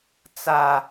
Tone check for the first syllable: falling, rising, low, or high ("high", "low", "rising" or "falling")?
high